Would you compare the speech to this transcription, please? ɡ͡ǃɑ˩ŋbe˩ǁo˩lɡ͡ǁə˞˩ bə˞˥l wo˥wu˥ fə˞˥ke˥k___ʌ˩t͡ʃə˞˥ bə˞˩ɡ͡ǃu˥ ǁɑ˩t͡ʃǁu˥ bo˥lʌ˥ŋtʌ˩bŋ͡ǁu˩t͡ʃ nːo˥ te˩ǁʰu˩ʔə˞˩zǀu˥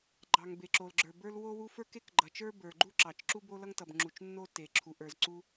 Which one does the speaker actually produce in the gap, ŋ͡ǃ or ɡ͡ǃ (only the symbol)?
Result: ɡ͡ǃ